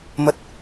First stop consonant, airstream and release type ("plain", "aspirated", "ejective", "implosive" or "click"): plain